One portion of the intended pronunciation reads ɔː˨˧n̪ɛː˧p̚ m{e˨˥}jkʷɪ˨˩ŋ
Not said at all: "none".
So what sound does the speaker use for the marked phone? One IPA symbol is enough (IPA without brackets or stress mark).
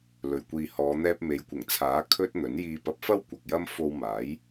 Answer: e˨˧